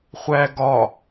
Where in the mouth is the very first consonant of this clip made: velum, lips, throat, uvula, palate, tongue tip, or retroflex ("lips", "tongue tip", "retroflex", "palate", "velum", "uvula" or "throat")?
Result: uvula